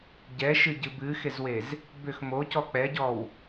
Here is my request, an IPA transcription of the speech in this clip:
ɟ ɛ ʃ ɨ ɟ ɨ b ɨ x e z w e z | b ʏ x m o c ɔ k͡p ɛ ɟ ɔ w

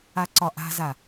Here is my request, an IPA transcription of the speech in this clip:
a ǀ ɒ ʔ a̤ z a

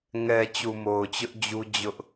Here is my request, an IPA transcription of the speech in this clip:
ŋ ɛ˨ t͡ɕ u˨ m o˨ ʊ̯ t͡ɕ ʊ˦ ʔ d͡ʑ u˦ d͡ʑ ʊ˦ ʔ

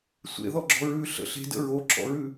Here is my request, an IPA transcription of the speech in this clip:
sʷ ḛ ð ɔ ɡ͡ǁ ɔ̤ ɹ ʉ ɬ ə̰ ɬ e̤ d ə̰ ɹ o ǁ ɔ̰ ɹ ʉ

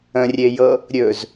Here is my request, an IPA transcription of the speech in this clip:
ə̃ rʲ e j ɤ | ɾʲ ɵ z

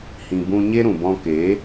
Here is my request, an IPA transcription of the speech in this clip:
h ĩ˧ b ũ˧ ɲ e˦ ɾ ũ˨ b ɔ̃˧ k eː˨˦

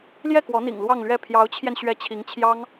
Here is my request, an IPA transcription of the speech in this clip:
l j ɛ˥˩ k w ɔ˧˥ n̪ ḭ˨˩ ŋ l w ɑ˥˧ ŋ l ɥ ɛ˥˩ pʰ j ɑ˧˥ ʊ̯ t͡ɕʰ j ɛ˧ n ɕ ɥ ɛ˧˥ t͡ɕʰ i˧˥ ŋ t͡ɕʰ j ɑ˥ ŋ

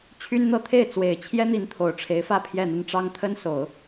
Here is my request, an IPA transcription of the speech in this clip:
t͡ɕʰ y˥ n n̪ ɤ˥˧ t̪ʰ e˥˩ ɪ̯ t͡s w e˨˩ ɪ̯ t͡ɕʰ j ɛ˥ n̪ i˧˥ n t̪ʰ o˨˩ ʊ̯ ʈ͡ʂʰ e˧˥ ɪ̯ f ä˥˧ pʰ j ɛ˥˧ n̪ ə˥˩ n ʈ͡ʂ ɑ˥ ŋ t̪ʰ ə˥ n s o˨˩˦ ʊ̯

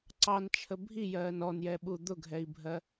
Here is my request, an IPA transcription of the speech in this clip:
ǀ ɑ n t͡ʃʰ ə bʱ i j ɜː n ɔ n j ɛ ɓ u d̪ ʊ ɡʱ ɛ i̯ bʱ ɜ

